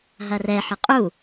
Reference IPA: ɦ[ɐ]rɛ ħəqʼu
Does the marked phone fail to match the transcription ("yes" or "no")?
no